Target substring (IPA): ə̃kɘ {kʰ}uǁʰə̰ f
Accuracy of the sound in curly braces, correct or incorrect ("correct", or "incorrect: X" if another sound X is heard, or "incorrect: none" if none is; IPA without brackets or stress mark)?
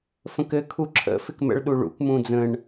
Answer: correct